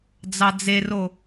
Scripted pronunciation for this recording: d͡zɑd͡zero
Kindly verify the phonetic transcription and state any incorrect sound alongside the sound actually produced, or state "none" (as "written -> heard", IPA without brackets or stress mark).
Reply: none